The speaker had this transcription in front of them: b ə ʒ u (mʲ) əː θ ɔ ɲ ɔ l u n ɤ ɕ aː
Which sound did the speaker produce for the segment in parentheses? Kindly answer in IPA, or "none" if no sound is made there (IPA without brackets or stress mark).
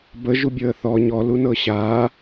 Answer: bʲ